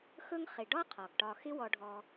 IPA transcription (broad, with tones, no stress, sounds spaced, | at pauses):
x ɵ˦ ŋ χ ɪ˩ ɖ ɒ˥ qʰ ɒ˩ ɡ ʈ ɒ˨ x ɪ˥ w ɔ˨ ɖʱ ɔ˨